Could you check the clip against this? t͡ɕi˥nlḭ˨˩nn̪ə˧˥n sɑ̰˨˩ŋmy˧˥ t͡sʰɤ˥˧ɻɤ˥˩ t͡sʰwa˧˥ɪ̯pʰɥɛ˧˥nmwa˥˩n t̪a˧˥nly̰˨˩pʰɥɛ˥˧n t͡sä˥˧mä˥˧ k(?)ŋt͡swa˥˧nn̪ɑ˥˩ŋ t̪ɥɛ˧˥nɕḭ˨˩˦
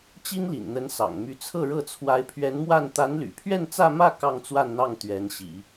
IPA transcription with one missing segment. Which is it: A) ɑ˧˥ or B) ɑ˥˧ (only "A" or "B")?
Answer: B